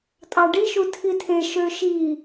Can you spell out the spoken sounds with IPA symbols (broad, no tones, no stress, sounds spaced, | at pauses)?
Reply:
tʼ ɑ ɖ i ʃ u tʰ i tʰ e ʃ ø ʃ i